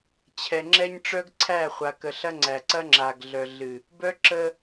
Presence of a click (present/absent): present